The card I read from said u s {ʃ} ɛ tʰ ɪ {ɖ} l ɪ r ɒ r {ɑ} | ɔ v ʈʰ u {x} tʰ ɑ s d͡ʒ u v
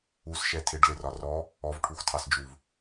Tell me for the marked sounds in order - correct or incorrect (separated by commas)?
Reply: correct, correct, incorrect, correct